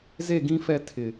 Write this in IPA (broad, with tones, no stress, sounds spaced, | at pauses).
z e˦˨ ɡ ĩ˦ f ɛ˦˨ tʰ ɪ˨